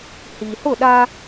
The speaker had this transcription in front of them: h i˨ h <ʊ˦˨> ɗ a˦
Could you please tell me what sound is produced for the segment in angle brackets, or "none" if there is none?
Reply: ʊ˦˨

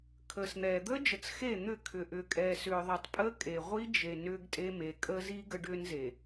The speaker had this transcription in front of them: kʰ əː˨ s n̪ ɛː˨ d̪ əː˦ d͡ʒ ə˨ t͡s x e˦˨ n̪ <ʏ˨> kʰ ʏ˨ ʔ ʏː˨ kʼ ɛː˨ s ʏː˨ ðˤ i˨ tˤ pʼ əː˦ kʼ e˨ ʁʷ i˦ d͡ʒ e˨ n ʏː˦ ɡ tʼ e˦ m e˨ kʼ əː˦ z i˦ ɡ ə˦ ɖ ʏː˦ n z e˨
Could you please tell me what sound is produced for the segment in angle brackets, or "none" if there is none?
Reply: ʏ˦˨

